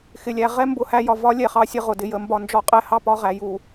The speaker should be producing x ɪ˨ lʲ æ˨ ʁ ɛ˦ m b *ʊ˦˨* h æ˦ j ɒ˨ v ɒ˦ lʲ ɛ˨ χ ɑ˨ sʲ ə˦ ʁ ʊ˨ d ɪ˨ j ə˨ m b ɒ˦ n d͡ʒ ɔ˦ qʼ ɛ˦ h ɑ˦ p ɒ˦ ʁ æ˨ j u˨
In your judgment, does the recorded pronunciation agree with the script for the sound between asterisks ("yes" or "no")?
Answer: yes